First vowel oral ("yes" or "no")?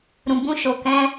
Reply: no